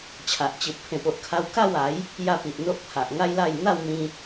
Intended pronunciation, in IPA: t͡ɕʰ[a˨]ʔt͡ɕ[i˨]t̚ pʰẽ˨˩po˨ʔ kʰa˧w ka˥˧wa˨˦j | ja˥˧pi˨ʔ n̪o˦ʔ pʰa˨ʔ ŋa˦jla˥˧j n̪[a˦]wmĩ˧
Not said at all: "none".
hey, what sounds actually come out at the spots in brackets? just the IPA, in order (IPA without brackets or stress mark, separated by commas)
a˨, i˨, a˥˧